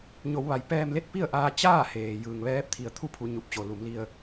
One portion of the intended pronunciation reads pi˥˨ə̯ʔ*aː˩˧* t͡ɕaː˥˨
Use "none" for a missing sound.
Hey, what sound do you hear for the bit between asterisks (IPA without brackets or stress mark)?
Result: aː˧